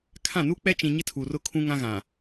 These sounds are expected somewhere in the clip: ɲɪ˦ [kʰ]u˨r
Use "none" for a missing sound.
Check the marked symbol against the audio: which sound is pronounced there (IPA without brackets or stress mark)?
tʰ